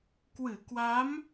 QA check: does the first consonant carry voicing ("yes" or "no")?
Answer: no